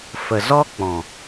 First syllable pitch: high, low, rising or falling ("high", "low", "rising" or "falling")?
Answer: low